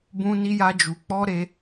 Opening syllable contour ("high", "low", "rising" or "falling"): high